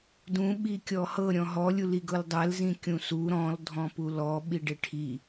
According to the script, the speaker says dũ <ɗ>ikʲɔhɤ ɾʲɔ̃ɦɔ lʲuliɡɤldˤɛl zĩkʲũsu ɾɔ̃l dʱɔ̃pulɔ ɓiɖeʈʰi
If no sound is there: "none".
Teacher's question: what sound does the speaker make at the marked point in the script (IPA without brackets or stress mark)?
ɓ